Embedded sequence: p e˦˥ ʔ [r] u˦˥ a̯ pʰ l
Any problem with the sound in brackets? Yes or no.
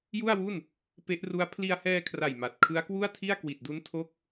no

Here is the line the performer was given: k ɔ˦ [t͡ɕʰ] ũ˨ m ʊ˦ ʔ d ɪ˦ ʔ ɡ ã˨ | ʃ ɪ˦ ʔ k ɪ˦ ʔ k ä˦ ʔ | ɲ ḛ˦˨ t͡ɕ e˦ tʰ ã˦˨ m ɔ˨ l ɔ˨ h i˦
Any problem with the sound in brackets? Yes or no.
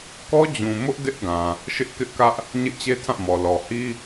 yes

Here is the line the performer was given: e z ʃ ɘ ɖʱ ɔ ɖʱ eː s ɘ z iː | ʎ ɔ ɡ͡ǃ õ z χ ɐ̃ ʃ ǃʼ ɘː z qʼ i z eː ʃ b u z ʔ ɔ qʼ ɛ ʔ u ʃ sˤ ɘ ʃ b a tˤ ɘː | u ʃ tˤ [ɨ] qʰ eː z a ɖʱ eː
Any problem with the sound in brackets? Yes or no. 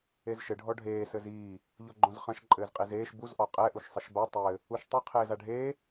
no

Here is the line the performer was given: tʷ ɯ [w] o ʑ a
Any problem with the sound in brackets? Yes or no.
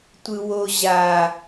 no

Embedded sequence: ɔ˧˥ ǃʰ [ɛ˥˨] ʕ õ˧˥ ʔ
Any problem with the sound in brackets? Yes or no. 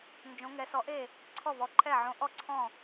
no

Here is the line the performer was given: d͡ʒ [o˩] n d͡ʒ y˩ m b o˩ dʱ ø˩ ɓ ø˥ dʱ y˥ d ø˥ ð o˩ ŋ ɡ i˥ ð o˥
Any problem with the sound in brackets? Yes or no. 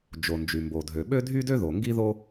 no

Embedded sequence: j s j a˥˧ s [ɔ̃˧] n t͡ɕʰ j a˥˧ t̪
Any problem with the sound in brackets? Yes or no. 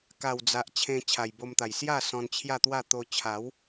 no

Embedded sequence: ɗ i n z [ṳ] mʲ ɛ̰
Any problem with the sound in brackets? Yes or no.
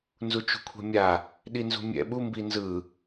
no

